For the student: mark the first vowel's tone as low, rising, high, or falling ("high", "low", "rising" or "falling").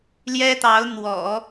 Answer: high